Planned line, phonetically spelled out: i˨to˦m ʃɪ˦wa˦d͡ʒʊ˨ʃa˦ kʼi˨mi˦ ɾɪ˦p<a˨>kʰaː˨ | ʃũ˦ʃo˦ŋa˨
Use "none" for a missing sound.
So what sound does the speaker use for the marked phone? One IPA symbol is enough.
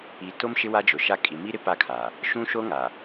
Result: a˦˨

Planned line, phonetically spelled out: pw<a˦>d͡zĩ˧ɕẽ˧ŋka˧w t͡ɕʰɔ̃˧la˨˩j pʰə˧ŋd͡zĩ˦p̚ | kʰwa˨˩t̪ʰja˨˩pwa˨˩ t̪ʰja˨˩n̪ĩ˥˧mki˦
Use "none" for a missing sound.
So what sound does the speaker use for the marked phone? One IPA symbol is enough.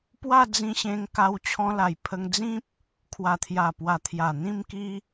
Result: a˥˧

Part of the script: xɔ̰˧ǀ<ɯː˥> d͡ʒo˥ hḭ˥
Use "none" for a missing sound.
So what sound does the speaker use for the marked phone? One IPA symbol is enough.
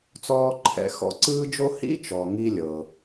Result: ɯː˥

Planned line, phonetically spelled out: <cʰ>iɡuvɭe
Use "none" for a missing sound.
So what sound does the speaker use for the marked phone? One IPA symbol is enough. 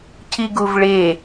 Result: cʰ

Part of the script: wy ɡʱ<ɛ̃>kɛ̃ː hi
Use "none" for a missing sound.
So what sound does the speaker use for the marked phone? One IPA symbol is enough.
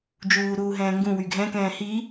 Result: ɛ̃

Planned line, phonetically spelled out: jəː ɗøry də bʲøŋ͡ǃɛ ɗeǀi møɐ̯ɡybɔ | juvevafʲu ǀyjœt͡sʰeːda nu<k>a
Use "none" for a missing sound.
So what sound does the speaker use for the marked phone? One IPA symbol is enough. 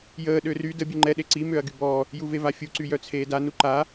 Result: ǃ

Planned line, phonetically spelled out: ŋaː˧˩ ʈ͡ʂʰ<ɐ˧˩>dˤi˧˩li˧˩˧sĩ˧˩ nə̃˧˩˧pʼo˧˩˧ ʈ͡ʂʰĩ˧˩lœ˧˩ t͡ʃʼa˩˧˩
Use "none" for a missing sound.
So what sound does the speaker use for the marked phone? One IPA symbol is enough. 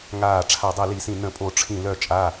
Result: a˧˩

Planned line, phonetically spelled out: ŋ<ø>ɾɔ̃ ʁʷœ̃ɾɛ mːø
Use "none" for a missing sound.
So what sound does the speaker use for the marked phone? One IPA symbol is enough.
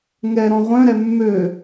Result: ɛ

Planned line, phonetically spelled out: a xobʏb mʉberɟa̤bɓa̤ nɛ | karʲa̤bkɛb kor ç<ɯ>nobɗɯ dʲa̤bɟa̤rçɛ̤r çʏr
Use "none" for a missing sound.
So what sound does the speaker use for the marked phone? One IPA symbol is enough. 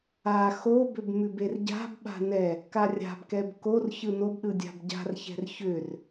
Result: ɯ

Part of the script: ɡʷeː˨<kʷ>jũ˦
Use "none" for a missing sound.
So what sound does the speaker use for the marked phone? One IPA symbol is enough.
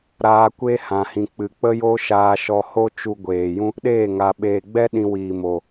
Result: none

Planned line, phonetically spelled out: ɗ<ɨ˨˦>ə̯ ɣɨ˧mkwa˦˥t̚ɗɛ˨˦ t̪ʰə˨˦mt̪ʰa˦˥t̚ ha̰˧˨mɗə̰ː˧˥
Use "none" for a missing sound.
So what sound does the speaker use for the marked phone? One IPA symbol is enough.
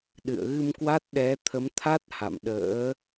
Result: ɨ̰˧˨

